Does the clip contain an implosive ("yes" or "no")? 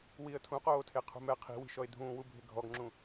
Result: no